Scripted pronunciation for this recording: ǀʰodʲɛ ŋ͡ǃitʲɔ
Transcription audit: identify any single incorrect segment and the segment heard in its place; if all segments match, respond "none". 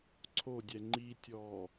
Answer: none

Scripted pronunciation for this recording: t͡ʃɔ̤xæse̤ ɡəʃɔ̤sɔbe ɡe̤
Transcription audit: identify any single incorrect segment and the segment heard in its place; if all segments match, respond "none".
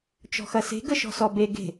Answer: æ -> ɐ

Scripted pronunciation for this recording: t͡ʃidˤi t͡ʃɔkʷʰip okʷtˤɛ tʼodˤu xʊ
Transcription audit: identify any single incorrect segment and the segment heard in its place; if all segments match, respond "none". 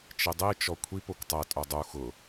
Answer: none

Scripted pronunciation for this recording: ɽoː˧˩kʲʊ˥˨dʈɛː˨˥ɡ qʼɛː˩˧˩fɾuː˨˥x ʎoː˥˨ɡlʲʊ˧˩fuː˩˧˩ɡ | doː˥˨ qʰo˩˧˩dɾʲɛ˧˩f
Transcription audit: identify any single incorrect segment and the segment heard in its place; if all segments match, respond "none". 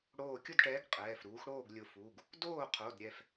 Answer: ʎ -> ɽ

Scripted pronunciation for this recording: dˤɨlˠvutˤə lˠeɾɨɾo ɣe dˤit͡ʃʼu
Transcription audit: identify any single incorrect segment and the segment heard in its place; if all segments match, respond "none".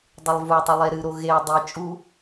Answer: ə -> ɨ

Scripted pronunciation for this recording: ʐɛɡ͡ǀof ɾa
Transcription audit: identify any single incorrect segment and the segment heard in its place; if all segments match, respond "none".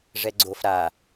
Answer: none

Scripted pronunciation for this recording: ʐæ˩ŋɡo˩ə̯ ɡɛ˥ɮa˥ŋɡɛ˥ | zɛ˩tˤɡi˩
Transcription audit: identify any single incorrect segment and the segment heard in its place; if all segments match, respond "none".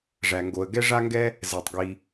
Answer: ɮ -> ʐ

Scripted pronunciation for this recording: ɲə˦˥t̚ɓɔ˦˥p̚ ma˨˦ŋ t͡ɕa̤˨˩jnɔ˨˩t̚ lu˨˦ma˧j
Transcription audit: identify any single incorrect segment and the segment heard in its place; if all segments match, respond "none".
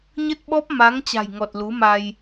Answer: n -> ŋ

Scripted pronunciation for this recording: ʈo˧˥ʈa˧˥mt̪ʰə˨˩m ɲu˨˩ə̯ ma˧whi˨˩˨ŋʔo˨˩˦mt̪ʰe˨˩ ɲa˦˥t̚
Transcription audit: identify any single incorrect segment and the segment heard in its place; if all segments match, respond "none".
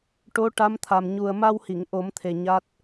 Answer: ə˨˩ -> a˨˩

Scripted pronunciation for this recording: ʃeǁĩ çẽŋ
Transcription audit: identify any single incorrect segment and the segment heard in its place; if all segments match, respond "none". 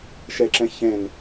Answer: ĩ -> ẽ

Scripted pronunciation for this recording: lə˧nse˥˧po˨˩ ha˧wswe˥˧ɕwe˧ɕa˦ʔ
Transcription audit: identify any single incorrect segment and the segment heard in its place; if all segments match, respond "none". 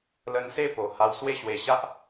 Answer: none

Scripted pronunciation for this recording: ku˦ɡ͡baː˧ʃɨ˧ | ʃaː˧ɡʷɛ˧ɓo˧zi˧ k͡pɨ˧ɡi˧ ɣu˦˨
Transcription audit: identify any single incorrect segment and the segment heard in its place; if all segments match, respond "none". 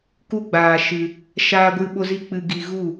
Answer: ɛ˧ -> ɨ˧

